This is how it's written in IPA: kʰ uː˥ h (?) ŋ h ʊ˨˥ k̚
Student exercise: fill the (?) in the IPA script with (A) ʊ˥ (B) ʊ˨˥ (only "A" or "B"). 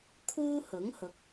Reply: B